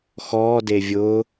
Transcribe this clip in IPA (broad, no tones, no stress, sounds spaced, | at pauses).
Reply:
x ɔː d e vʲ ʊː